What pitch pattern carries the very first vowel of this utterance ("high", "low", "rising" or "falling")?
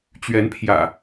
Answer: rising